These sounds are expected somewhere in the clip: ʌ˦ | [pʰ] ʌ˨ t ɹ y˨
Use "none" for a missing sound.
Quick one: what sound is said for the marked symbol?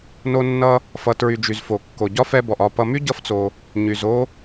f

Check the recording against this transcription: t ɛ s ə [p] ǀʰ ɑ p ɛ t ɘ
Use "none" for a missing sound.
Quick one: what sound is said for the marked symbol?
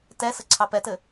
none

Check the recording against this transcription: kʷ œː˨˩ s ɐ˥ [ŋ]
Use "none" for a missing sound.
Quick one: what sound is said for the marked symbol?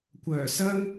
ŋ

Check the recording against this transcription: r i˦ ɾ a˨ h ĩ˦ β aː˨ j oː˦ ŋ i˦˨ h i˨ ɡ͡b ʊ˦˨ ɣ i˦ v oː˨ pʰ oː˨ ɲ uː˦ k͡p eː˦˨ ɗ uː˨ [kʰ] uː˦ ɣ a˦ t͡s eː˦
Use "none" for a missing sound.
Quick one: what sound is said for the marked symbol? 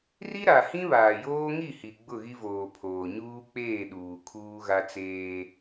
kʰ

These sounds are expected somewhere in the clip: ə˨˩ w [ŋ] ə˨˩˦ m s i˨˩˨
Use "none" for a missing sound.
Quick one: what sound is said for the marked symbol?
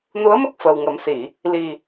ŋ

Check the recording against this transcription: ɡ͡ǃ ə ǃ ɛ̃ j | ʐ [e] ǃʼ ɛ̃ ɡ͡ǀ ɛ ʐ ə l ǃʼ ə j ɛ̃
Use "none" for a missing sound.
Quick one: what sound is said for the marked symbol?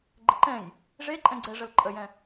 e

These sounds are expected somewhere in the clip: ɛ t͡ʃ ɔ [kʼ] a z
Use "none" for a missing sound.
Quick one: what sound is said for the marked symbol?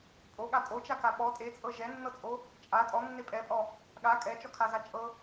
kʰ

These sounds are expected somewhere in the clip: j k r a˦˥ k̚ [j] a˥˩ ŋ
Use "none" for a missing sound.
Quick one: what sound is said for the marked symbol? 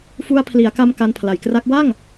w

